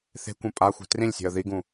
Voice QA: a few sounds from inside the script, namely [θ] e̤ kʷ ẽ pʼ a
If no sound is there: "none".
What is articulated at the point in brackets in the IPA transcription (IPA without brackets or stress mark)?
θ